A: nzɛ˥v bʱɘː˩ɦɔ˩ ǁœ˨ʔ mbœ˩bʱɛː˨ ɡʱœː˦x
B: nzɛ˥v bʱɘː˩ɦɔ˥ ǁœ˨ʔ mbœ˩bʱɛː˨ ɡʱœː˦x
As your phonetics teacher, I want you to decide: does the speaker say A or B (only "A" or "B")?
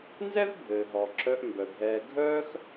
A